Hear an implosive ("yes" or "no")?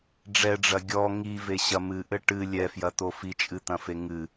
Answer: no